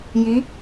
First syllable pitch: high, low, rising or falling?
rising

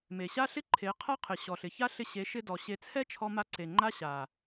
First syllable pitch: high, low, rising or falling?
low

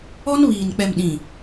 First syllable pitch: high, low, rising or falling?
high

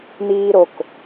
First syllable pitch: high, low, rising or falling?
high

